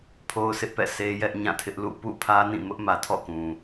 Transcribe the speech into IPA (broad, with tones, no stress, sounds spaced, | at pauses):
pʰ o˦ ʊ̯ s ɪ˦ ʔ p ɛ̰˦˨ sʰ e˦ j ɛ˦ ʔ ɲ ã˦˨ tʰ ɪ˦ ʔ l ṵ˦˨ p ṵ˦˨ pʰ ä˦ n ĩ˦˨ m ʊ˦ ʔ m ä˨ tʰ ɔ̰˦˨ k ũ˨